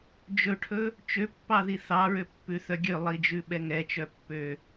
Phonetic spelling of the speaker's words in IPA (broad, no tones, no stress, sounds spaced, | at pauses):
d͡ʒ ɵ ʈʰ ɵ | t͡ʃ ø pː ɑ ð i θ ɑ ɹ ø pː ʉ θ œ ɡʲ ø lˠ i d͡ʒ ʉ ɓ ɛ ŋ ɛ t͡ʃ œ pː ø